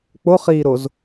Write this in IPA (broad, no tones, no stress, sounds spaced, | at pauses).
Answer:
k͡p o χ iː ɾ o z